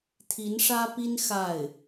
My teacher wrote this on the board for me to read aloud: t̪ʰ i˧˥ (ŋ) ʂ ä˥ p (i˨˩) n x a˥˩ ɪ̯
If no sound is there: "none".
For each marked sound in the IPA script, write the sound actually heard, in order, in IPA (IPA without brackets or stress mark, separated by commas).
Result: n, i˥